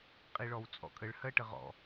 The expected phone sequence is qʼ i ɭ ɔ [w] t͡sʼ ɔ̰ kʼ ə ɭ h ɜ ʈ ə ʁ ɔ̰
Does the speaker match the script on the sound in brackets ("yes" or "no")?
yes